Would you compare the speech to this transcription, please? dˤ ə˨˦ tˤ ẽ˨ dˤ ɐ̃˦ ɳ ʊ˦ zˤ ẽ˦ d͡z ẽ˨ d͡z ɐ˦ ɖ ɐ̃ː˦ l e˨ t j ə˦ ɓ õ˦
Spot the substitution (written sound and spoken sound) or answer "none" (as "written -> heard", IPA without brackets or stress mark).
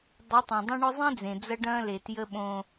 none